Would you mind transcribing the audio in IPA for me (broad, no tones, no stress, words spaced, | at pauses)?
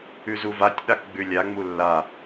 ʉzuvatʲ ɗakɡ͡bʉlʲa ŋ͡mulːa